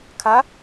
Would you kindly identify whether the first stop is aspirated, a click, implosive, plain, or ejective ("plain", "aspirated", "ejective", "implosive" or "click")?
aspirated